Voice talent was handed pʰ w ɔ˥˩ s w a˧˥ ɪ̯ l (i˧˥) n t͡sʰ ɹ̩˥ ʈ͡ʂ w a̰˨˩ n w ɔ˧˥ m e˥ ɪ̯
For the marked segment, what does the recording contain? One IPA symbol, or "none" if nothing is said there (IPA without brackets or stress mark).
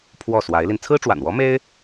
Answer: i˧